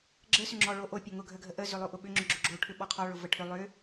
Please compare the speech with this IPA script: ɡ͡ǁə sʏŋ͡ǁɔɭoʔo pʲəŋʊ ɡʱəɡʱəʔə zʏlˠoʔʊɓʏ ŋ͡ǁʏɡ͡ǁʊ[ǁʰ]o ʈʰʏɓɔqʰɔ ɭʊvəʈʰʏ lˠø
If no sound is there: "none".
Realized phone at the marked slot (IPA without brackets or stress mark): ɡ͡ǁ